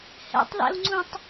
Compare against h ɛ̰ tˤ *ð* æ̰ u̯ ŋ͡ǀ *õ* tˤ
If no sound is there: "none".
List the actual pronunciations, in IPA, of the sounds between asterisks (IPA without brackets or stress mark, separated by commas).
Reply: ð, ũ